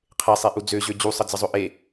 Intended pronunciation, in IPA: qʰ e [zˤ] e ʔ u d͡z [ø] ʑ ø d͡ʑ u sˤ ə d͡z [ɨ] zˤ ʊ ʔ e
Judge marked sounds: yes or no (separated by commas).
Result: no, yes, no